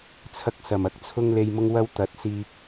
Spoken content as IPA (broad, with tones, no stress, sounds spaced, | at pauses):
t͡sʰ ɐ˧ k̚ s ɐ˨˩ m ɐ˨˥ k̚ t͡sʰ ʊ˧ ŋ l e˨ j m ʊ˧ ŋ w ɐ˧ w t̪ ɐ˨ t̚ s iː˧ k̚